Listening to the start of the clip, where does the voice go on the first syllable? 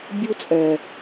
high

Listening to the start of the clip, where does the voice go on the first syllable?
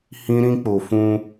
high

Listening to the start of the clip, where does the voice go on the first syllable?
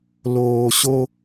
low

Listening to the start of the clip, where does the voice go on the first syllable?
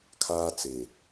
high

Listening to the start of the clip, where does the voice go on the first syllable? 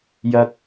low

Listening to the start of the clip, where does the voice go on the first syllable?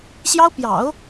high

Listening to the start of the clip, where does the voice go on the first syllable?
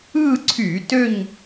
falling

